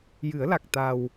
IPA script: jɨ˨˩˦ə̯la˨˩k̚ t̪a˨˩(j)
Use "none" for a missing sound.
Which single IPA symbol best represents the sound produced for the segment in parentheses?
w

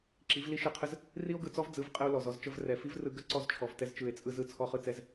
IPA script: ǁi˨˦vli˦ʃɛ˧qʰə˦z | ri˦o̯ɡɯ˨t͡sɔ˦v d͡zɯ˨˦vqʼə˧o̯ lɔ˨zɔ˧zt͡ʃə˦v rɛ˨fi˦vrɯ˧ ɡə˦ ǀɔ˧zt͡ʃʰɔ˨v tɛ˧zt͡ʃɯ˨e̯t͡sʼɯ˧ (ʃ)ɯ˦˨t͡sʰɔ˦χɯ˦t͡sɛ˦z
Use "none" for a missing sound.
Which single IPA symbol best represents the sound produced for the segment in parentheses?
z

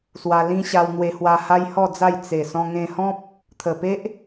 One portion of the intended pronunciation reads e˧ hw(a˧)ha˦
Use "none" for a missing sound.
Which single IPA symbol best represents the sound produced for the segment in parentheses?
a˧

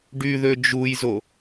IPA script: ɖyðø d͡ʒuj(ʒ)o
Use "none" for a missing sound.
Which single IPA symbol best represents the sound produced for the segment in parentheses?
z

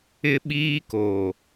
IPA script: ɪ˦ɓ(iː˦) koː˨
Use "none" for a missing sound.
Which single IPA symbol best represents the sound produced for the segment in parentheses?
iː˦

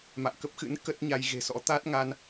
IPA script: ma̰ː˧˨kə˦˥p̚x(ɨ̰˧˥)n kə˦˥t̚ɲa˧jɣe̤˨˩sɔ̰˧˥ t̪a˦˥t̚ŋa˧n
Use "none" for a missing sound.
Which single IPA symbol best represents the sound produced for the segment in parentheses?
ɨ̰˧˥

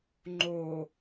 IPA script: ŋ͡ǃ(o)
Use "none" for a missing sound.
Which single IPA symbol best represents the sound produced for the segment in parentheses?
o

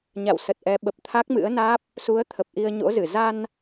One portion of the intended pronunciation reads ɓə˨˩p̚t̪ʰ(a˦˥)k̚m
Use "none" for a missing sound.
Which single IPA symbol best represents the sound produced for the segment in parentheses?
a˦˥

